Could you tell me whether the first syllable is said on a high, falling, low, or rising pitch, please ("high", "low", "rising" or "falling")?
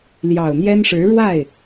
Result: low